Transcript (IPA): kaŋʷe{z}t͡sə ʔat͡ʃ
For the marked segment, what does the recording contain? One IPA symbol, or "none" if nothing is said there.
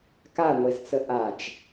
z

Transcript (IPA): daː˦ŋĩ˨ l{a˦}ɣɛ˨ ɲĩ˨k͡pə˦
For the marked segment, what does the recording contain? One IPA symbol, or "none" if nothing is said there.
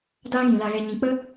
a˨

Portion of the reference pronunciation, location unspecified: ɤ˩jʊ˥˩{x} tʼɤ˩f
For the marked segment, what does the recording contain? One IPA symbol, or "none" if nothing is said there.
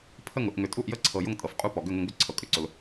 ŋ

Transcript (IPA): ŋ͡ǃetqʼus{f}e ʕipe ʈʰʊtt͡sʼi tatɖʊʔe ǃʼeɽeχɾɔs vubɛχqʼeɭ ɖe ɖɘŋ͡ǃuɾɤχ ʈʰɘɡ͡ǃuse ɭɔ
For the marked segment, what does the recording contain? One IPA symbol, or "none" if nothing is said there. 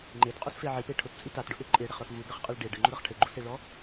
f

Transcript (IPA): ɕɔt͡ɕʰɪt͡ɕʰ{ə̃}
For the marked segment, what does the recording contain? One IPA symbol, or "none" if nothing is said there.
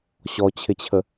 ə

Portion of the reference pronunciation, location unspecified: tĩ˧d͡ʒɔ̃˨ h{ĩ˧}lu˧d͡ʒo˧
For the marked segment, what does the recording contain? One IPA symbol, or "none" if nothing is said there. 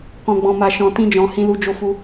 ĩ˧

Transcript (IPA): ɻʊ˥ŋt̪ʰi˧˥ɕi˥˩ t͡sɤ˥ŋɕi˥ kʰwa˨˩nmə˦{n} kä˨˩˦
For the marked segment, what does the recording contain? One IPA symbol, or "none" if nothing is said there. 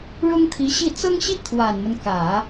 n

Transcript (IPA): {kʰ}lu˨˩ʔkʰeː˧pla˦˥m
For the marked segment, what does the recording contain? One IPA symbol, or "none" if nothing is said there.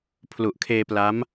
pʰ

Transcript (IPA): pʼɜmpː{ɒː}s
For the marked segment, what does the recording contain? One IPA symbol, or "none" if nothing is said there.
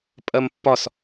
ɒ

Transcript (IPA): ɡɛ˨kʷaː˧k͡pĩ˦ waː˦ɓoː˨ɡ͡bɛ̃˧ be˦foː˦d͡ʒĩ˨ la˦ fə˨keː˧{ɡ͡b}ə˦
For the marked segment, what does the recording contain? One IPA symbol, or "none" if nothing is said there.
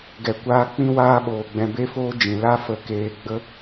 ɡ͡b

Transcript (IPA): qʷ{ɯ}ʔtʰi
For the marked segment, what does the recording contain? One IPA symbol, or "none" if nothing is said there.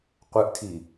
ɯ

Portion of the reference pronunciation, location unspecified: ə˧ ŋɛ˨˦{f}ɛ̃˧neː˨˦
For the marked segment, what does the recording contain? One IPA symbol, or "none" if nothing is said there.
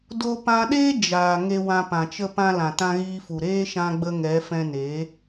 f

